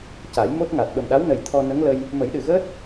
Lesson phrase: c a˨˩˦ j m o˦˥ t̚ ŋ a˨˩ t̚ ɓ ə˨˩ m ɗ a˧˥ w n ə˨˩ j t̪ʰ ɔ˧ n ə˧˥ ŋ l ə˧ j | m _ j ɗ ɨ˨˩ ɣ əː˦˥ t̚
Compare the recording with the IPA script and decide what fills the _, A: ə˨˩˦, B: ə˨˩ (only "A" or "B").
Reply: A